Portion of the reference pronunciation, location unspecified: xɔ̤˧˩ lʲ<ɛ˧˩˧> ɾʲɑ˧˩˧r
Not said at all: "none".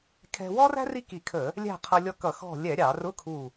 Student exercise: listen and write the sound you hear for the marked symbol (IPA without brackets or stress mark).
ɛ˧˩˧